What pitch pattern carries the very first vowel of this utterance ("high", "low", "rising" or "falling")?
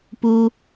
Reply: high